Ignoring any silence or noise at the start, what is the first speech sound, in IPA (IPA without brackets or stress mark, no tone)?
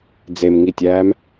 d͡z